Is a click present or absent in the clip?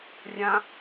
absent